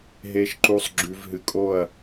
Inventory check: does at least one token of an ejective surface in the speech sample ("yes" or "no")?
yes